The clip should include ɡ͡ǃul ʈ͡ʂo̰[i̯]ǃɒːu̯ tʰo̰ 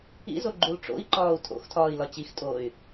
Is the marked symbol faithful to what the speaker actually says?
yes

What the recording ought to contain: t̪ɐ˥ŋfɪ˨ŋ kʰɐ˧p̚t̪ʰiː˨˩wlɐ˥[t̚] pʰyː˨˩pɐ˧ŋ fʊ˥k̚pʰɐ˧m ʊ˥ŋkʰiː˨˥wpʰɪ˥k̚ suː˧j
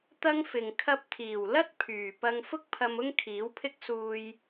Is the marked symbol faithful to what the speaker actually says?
yes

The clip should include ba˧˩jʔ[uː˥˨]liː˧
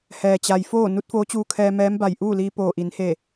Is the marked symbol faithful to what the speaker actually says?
yes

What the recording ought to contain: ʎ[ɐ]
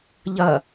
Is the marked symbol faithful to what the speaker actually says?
yes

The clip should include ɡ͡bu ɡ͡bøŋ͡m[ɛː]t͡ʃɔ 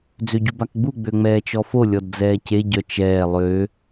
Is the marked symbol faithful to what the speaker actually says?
yes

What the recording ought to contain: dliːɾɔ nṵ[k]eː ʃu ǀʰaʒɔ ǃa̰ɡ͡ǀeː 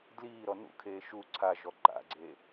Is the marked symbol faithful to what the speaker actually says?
no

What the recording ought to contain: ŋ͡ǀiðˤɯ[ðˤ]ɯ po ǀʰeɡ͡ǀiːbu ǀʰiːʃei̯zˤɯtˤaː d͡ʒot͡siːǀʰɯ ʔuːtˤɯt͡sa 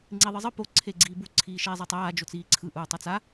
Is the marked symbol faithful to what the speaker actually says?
no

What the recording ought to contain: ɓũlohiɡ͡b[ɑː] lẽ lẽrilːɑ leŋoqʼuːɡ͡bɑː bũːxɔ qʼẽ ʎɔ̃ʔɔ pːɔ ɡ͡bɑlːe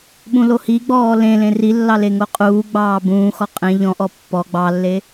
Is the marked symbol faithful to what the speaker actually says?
no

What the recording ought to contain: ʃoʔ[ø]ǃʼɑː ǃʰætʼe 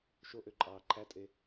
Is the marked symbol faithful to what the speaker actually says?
yes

